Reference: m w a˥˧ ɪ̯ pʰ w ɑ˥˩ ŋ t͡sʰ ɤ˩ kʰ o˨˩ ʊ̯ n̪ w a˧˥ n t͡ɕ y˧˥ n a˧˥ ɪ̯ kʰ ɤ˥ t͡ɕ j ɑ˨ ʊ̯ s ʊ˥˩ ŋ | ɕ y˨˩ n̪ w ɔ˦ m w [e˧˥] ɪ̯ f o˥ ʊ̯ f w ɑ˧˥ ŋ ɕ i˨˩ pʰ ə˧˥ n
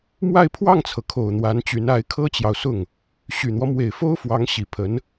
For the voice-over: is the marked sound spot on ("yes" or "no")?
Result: no